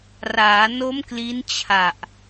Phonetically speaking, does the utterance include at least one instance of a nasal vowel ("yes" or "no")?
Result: no